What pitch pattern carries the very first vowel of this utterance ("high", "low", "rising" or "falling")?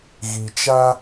low